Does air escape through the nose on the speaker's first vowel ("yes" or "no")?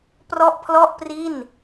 no